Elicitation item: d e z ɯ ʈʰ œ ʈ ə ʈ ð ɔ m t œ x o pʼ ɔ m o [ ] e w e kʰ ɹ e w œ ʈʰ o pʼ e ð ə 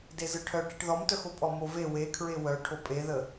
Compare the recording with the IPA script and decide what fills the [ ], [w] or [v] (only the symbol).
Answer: v